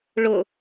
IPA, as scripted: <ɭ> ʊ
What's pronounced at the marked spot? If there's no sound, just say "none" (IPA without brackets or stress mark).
ɭ